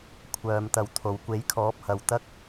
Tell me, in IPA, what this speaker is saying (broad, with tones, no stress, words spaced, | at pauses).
kʷʰœː˧mt̪ɐ˧wt̪ʰo˨˧w kʷe˨˥jkʰɔː˨˥p̚ hɐ˨wt̪ɐ˥k̚